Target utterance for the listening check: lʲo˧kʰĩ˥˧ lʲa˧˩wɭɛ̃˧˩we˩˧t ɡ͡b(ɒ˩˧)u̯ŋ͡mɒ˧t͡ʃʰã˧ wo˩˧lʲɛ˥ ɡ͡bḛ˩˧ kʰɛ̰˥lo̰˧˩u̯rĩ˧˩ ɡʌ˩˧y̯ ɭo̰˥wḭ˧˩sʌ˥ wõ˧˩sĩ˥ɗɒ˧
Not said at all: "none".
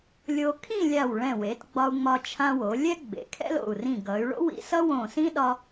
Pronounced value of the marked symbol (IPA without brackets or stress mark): ɒ˧